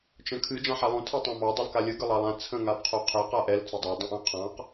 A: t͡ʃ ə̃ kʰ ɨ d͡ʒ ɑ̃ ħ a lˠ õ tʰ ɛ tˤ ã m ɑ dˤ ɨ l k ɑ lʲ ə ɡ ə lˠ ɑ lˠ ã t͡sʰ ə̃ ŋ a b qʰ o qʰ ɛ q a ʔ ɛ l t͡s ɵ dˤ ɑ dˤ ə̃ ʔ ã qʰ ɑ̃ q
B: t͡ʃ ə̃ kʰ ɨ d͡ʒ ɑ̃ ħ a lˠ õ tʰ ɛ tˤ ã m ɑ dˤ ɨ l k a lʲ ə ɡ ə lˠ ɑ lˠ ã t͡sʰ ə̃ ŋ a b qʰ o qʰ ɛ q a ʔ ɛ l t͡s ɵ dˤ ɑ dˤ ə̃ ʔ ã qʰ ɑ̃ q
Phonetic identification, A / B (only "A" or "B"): B